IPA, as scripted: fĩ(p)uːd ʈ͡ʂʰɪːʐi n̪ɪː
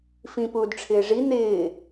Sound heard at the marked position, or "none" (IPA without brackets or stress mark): p